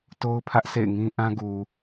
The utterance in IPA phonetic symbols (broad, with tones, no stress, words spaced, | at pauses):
to˦ʊ̯pʰä˦ʔsḛ˦˨ɪ̯ŋĩ˦ ʔã˦ɡu˨